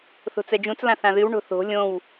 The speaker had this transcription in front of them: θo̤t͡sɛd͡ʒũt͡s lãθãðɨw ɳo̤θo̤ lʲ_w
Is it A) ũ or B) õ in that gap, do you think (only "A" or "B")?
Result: B